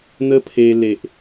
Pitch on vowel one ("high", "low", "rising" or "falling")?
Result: high